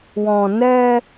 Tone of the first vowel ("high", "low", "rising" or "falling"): low